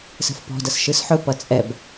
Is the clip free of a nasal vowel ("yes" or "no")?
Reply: yes